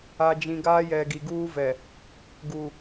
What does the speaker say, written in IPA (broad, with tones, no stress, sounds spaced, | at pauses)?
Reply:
a˨ d͡ʒ ĩ˨ ɡ aː˦ j ɛ˨ ɡ i˨ ɡ uː˦ v ɛ˨ | ɡ u˨